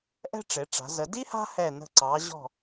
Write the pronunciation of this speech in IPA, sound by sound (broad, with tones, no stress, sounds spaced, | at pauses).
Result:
ʔ ɛ̤˥ ʈ͡ʂ e˩˧ ʈ͡ʂ a̤˩˧ z ə˩˧ d i˥ h a̤˥ h ɛ˧˩ n ə̤˧˩ ǀ ɑ˩˧ ʑ ɔ̤˧˩